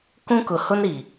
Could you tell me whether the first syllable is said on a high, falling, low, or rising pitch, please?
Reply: high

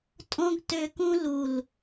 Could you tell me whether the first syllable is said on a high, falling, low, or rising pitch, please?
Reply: high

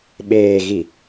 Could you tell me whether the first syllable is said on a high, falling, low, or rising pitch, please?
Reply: low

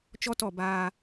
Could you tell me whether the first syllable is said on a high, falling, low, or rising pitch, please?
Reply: high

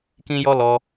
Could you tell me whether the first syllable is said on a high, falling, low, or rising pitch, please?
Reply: high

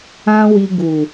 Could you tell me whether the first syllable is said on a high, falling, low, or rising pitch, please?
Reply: high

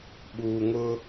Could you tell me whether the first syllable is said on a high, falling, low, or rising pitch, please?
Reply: low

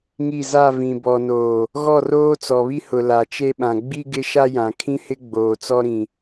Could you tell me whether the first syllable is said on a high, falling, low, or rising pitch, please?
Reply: falling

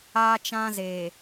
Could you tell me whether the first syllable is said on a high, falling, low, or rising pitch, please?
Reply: high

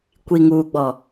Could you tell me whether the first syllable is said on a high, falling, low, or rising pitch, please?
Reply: low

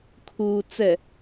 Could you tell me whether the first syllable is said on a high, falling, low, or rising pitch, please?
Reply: low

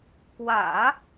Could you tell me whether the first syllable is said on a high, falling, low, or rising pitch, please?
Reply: low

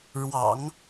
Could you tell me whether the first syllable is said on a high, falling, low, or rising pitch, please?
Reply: low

